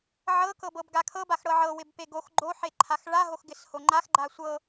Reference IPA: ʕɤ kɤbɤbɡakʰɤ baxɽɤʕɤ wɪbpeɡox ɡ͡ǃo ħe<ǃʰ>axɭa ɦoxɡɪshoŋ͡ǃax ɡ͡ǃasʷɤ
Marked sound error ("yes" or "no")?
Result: no